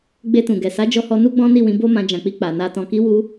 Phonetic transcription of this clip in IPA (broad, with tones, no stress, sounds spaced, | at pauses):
ɡ͡b e˧ t ũ˨ ɡ ɛ˨ s a˨˦ d͡ʒ ɔ˧ h ɔ˧ n u˦ ɡ͡b ɔ̃˦ n i˦˨ w ĩ˨˦ b o˦ m ã˧ d͡ʒ ã˨ k͡p i˧ k͡p a˨ n a˧ t ɔ̃˧ k i˦ w u˦